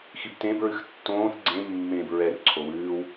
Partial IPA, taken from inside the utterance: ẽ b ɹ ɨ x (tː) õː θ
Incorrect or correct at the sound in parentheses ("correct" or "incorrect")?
correct